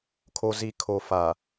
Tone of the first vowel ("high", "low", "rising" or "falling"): low